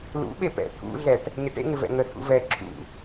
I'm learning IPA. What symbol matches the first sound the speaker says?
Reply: l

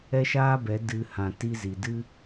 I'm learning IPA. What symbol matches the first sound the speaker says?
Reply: ɛ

